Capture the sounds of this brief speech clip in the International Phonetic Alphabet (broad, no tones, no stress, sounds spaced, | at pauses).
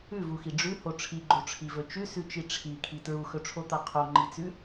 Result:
ʉ v u x i ɖ͡ʐ ʉ h o ʈ͡ʂʰ i ɡ͡ǃ o ʈ͡ʂʰ i v ɵ t͡ʃ ʉ s ʉ t͡ʃ i ʈ͡ʂʰ i kʰ i t ɹ u x ɵ ʈ͡ʂʰ o t̪ a qʰ o ŋ͡ǃ i t͡s ʉ